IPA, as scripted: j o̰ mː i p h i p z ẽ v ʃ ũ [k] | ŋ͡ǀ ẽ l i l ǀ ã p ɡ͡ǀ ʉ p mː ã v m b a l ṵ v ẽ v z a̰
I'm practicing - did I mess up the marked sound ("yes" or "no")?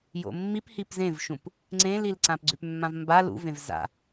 yes